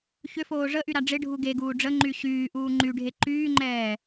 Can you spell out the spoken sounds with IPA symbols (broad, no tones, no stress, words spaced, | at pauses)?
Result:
çʏfoː ʐəʔyɾa ɖ͡ʐɪɖʱu ɡeɡuː ɖ͡ʐəŋ͡ǃy ɕyːʔuː ŋ͡ǃyɖʱe ǃyːŋ͡ǃɛː